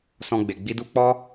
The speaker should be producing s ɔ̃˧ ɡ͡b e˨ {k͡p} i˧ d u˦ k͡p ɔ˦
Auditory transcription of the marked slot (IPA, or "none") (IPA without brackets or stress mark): ɡ͡b